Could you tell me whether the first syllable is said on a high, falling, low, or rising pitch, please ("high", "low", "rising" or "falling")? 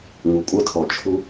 low